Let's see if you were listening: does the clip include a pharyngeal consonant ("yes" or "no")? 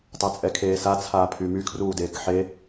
yes